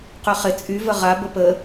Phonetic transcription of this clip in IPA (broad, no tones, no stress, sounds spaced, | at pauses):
q y χ ɪ t͡sʼ y v ə ʁ a b ə p ə